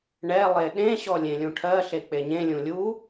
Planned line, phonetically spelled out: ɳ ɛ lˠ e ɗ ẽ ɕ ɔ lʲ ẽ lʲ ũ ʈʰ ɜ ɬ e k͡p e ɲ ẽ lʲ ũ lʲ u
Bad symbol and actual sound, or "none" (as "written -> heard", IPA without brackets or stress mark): none